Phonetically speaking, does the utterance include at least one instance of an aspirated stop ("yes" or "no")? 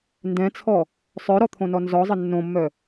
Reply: yes